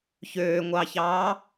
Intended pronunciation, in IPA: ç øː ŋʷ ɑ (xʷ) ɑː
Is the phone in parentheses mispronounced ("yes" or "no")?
yes